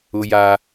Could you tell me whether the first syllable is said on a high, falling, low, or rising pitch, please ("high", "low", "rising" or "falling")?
high